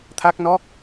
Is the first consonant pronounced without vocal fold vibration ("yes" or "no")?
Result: yes